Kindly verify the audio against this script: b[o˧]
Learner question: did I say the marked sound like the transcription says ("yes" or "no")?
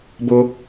yes